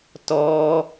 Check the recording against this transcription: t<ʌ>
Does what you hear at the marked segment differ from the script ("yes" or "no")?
yes